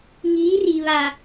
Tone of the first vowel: rising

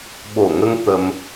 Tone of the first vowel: low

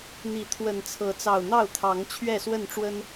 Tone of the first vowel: rising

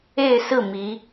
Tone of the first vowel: falling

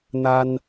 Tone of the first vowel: high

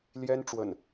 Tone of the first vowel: high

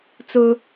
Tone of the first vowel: high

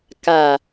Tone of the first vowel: low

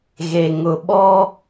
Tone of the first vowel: low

